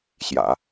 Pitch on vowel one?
low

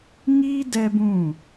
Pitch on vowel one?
high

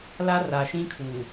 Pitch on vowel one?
high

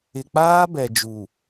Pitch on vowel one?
low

